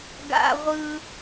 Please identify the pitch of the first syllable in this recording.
high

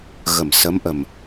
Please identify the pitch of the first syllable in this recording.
low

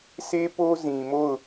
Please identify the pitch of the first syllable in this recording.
high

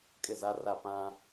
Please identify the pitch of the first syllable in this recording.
falling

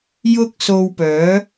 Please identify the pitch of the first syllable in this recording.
high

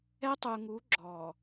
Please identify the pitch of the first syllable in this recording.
high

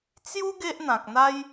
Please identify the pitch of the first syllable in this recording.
high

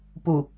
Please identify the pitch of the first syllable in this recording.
low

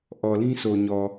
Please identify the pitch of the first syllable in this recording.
low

